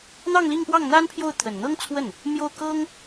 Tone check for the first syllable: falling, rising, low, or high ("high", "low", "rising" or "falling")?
falling